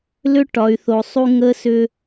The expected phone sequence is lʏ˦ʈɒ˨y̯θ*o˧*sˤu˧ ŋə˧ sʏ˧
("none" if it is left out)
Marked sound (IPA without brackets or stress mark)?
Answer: o˨